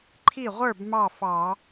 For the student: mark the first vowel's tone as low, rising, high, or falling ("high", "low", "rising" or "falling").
falling